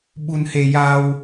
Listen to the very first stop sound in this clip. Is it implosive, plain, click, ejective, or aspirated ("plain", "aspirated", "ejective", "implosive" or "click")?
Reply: implosive